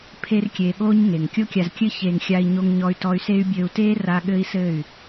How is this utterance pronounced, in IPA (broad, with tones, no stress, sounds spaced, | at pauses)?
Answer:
pʰ e˦ r kʲ eː˧ ɠ oː˦ ɲ ŋ e˨ ŋ kʲ o˧ kʲ a˨ z kʲ ɘ˧ ç eː˨ ŋ xʲ a˧ i̯ ɲ o˧ ŋ ɲ ɔ˧ y̯ t ɔ˧ y̯ s e˦ y̯ bʲ ɘː˧ u̯ t eː˦ r a˧ ɠ ɘ˦ i̯ s ɘ˦˨ y̯